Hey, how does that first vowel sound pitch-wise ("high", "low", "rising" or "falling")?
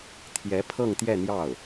rising